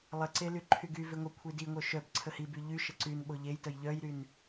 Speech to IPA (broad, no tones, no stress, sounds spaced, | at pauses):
lˠ ə ǀ e l y ǃʰ y ɡ y v e ŋʷ ə kʷʰ i d i ŋʷ œ ʃ œ b ǀʰ ə h i b y ʎ y ʃ ə ǀ y n ɓ o ʎ e j t ə j ʎ œ j ɾ y n